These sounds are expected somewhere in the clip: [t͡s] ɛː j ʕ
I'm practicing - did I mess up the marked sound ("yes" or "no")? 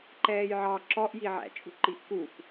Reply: yes